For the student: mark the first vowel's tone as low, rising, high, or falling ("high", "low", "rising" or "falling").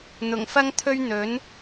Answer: low